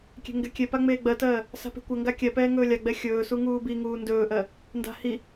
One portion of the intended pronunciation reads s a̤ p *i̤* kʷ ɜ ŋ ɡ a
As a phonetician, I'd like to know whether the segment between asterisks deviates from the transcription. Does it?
yes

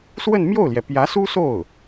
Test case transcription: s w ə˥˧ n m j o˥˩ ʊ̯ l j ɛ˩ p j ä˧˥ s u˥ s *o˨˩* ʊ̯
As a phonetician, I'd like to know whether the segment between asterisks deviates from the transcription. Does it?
yes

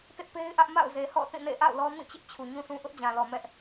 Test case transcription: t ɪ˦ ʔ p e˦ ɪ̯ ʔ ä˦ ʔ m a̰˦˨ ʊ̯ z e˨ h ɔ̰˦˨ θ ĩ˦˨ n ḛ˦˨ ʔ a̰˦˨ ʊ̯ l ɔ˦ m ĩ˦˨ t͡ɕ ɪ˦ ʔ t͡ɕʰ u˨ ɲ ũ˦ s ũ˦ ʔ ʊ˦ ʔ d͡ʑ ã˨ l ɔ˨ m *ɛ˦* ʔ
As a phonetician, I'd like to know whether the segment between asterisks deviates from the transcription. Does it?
no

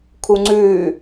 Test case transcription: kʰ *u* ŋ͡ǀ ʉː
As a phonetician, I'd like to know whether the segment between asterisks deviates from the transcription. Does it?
no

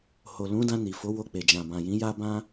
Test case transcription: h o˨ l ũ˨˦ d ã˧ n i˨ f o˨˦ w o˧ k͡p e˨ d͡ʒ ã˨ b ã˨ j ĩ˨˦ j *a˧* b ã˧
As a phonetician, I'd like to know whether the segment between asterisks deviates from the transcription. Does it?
no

